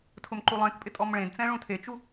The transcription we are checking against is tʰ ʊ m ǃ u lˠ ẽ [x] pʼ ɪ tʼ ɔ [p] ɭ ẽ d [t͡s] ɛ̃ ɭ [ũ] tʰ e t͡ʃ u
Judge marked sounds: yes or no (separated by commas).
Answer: no, no, yes, yes